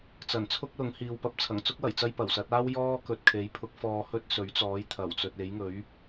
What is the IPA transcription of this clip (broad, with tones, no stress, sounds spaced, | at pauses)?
t͡s ɐ˨˩ n t͡sʰ ʊ˥ k̚ l ʊ˨˥ ŋ h iː˨ w p ɐ˨˥ p̚ t͡sʰ ɐ˨˩ ŋ t͡s ʊ˥ k̚ w ɐ˨˩ j t͡s ɐ˧ j p ɐ˨˩ w s ɐ˨˥ t̚ aː˥ w j ɔː˥ k ɵ˨ t̚ kʰ e˨˥ j pʰ ʊ˨˥ k̚ f ɔː˧ h ɵ˥ t̚ s ɵ˨˥ ɥ t͡s ɔː˨˥ j t̪ʰ ɐ˨˩ w t͡s ɵ˨ t̚ e˨˥ j ŋ ɵ˨˥ ɥ